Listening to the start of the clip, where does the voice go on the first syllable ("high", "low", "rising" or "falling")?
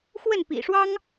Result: falling